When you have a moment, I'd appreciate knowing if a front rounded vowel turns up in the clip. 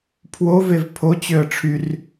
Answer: yes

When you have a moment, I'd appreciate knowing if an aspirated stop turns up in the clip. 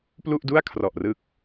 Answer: yes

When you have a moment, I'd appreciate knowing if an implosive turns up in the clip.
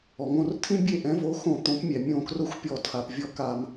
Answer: no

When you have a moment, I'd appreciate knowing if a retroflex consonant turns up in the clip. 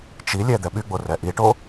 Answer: yes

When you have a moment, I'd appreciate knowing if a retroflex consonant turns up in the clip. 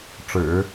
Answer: yes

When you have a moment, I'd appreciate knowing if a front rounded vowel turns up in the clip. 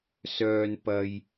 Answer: yes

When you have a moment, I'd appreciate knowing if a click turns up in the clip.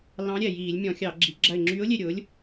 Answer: yes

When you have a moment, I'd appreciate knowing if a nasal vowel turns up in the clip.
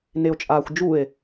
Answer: no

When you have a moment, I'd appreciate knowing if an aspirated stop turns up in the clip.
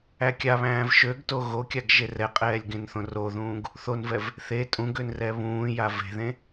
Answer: no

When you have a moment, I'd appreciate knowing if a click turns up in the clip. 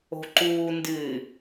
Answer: yes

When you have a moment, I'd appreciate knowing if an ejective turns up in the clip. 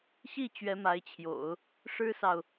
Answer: no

